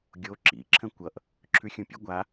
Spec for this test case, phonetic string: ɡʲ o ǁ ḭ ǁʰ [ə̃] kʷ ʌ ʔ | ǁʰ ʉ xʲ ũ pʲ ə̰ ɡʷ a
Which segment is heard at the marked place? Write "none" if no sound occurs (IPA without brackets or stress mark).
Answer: ə̃